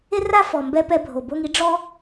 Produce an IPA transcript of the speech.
e˧ r a˦ f ɔ˨ m b ɛ˧ p ɛ˧ bʱ o˨ b o˧ ŋ i˨˦ ɖ͡ʐ ɔ˦

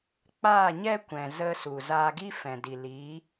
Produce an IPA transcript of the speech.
k͡p aː˦˨ ɲ ɛ˦ kʷ ɛ̃˨ z ə˧ s u˨ z aː˧ ɡ i˦ f ɛ̃˨ d i˨ l iː˨˦

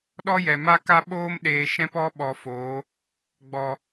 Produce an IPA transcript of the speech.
ɗ ɔ˦ j ɛ˨ m a˦ k a˦ ɓ oː˦ m ɗ eː˧ ʃ ɛ̃˦ p ɔ˦ ɓ ɔ˧ f oː˨˦ | ɡ͡b ɔ˨

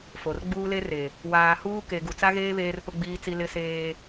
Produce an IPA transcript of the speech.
f o˨ r ɡ͡b uː˦ l e˦ r e˨ | w aː˨ h uː˦ k e˨ ɡ u˨ t͡s a˦ ɣ eː˦ β eː˦ r p ʊ˦ ɡ͡b iː˦ t͡s i˦ l ɪ˦ s eː˦

